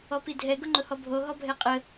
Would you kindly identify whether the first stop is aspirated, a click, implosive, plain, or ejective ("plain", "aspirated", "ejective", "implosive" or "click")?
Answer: plain